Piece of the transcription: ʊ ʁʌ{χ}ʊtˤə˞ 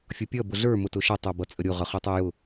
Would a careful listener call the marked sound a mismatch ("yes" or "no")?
no